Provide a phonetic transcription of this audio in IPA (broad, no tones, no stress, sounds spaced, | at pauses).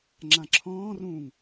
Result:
ŋ͡ǁ ã ǁʰ ɔ̃ː r ũː ŋ